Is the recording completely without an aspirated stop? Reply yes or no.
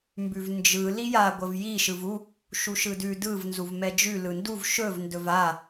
yes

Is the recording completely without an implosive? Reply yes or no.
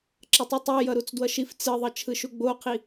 yes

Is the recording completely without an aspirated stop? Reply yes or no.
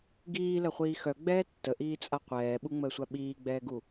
yes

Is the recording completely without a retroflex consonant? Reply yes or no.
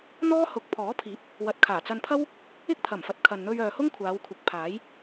yes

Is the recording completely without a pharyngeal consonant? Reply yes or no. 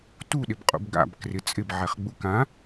no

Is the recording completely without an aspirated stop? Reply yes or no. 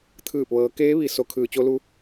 no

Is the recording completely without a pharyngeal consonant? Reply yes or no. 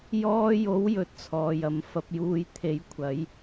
yes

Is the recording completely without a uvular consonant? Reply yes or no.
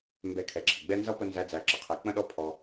no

